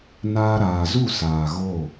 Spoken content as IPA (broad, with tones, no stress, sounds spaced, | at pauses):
n aː˧ ɾ aː˨ z u˦˨ s aː˨ ɣ o˦˨